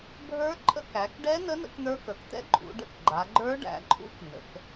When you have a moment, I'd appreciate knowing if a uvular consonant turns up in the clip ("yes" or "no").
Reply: no